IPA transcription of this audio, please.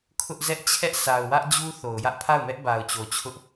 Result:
kʰ ʊ˦ ʔ z ɛ˦ ʔ t͡ɕʰ ɛ˦ ʔ s a˨ ʊ̯ w ä˦ ʔ d͡ʑ u˦ θ o˨ ʊ̯ j ä˦ ʔ pʰ a˦˨ ʊ̯ m ɛ˦ ʔ b a˨ ʊ̯ t͡ɕ o˨ t͡ɕʰ ʊ˦ ʔ

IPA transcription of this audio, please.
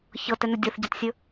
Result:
ç ɤ t ɛ n ɵ dʲ ɤ θ ɟ ɐ t sʲ ɵ

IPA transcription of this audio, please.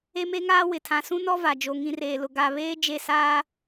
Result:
e˦ m e˦ ŋ aː˦ w ɪ˨ tʰ ã˨ s ũ˦ n ɔ˦ v a˨ d͡ʒ o˨ ŋ ĩ˨ r eː˨ l ʊ˨ ɡ a˨ β eː˦ d͡ʒ e˦˨ s aː˦

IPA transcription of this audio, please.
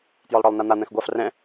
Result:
t j ɔ lˠ ɽ ɒ lˠ n a n̪ a n̪ ɛ̃ x ɡʷ a f r ɛ̃

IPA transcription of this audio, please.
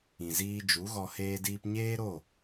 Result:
ĩ˨ z iː˧ d͡ʒ u˨˦ ɣ ɔ˧ h eː˧ d iː˧ p ɲ eː˦ ɾ o˦˨

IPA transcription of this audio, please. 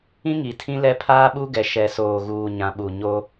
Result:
ĩ˦ ŋ i˨ tʰ ĩ˦ l ɛ˦ pʰ aː˦ ɓ u˦ ɡ ɛ˨ ʃ ɛ˨ s oː˨ ɣ uː˨ ɲ ã˨ ɓ u˨ ɲ o˦

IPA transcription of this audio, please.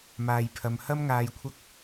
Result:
m aː˨ j pʰ ɐ˨ m h ɐ˥ m ŋ aː˧ j kʷʰ ɐ˥ k̚

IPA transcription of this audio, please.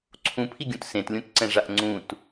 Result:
ǀʰ ũ pʰ i ɡʲ ũ t s ẽ t lʲ ũ t ǀ ɛ̃ ʐ a ʔ ŋ͡ǀ ũ t

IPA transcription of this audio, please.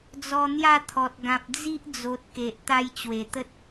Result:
d͡z ɔ˧ n̪ j a˥˧ t̪ʰ ɔ˨ t̚ ɡ ã˨ p̚ d͡z i˦ ʔ d͡z o˨ t̚ k e˨ ʔ t̪ a˧ j t͡ɕ w e˨˩ t̪ ə˦ t̚

